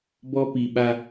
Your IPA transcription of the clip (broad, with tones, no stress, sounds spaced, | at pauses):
b ɔ˦ p i˨ ɓ a˦